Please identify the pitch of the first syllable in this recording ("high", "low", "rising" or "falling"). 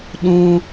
high